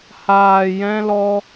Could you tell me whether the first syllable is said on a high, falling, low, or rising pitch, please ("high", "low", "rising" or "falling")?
low